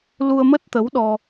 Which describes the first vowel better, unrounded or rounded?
rounded